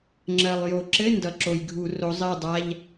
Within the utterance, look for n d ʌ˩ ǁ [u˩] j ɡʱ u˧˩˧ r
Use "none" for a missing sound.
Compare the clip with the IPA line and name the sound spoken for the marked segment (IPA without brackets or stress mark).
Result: o˩